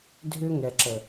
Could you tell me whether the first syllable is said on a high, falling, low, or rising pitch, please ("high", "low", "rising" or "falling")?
high